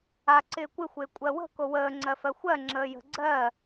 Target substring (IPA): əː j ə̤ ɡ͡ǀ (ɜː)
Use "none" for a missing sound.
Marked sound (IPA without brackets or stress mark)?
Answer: ɜː